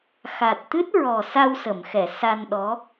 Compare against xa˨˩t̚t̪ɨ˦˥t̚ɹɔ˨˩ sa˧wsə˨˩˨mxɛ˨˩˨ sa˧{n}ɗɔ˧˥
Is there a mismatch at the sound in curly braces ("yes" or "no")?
no